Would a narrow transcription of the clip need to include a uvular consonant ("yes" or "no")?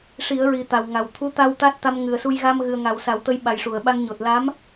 no